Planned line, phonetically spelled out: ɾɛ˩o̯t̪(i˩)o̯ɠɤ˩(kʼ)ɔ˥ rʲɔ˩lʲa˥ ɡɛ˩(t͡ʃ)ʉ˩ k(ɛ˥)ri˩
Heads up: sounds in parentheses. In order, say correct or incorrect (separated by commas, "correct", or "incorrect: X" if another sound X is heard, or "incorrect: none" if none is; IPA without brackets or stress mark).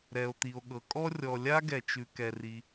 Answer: correct, correct, correct, incorrect: ɛ˩